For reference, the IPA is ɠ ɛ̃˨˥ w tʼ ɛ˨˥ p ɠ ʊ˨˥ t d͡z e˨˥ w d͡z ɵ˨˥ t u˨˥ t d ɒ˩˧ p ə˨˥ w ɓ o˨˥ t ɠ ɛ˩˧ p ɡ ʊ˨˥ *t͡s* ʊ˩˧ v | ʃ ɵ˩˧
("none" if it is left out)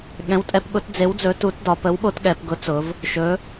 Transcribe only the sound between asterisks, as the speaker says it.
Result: t͡s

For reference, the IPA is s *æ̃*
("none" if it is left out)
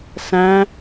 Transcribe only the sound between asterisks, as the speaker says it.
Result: æ̃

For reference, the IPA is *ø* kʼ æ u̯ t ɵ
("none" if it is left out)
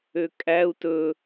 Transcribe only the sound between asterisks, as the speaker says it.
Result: ø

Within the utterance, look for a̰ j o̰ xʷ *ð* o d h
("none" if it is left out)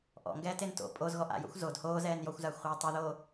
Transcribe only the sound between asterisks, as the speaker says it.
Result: z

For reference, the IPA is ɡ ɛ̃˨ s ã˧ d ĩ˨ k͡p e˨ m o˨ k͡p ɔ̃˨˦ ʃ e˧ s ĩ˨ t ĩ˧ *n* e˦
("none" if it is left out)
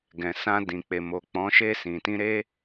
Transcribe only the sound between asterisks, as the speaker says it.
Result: ɾ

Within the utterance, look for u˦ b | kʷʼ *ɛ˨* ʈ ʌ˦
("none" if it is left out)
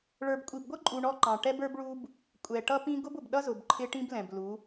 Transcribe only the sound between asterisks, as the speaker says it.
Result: ɛ˨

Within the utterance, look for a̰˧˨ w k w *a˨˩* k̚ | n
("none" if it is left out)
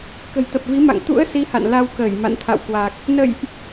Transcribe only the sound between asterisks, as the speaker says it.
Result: a˨˩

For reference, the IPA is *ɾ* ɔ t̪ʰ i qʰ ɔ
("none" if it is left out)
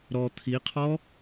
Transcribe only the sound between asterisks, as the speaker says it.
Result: ɾ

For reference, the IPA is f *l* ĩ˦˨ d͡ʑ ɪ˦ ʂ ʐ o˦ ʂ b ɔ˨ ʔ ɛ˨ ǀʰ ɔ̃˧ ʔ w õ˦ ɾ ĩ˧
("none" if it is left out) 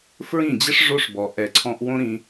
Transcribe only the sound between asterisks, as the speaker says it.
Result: ɹ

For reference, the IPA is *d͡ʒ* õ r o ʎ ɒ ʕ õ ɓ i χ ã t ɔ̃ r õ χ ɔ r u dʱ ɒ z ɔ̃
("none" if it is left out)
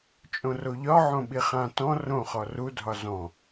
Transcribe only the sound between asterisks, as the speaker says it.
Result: t͡ʃʼ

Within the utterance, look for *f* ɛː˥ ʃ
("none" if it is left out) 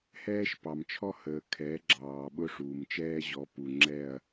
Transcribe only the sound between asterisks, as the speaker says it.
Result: h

